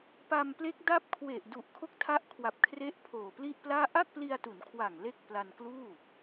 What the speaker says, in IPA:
p a˧ m p l e˦˥ k̚ d a˥˩ p̚ kʰ w e˨˩ ʔ d u˨˩ ʔ kʰ o˦˥ k̚ tʰ a˦˥ ʔ kʰ w a˨˩ p̚ kʰ r e˦˥ ʔ pʰ oː˨˩ p l i˥˩ ʔ p l aː˥˩ ʔ a˥˩ k̚ p l i˧ a̯ t u˩˦ n kʰ w a˨˩ ŋ l e˥˩ k̚ p l a˧ n k l uː˥˩

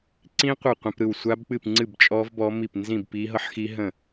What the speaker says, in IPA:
ǀ ĩ˦˥ qʷ ɯ˥˨ qʷ ə̃˦˥ p ɾ ɯ˥˨ w sʷ a˦˥ b k͡p ɨ˥˨ p ŋ͡ǀ ɨ˥˨ b t͡ʃʼ ɔ˦˥ v b ɔ˦˥ m i˥˨ p n z ĩ˥˨ b p i˦˥ ɦ ɤ˦˥ ħ x i˦˥ ɦ ə̃˥˨

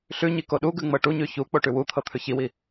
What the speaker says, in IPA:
ɬ ʉ ɲ i k o ɗ u ɡ ʉ ŋ͡m ɤ ʈ u ɲ ʉ ç u k͡p o ʈ ʉ w u t̪ʰ ɤ t̪ʰ ʉ ç i w i

